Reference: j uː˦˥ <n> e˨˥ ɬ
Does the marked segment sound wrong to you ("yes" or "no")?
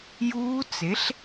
yes